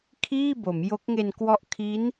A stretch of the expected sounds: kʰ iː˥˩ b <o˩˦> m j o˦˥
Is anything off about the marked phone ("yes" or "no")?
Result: no